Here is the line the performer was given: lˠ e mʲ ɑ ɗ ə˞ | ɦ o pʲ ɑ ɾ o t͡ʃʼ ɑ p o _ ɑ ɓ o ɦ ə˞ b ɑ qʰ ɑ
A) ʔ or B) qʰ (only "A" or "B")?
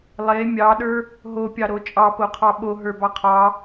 B